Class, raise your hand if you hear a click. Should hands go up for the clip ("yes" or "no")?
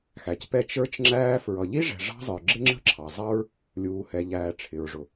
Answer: yes